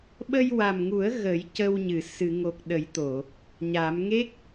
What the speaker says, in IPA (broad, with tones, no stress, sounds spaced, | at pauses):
ɓ ə˧ j w a˨˩ m ŋ u˨˩˦ ə̯ ɣ ə˨˩˦ j c ə˧ w ɲ ɨ˨˩˨ s ɨ˨˩˨ ŋ o˨˩ k̚ ɗ ə˨˩˦ j t̪ o˨˩˨ | ɲ a˨˩˦ m ŋ e˦˥ k̚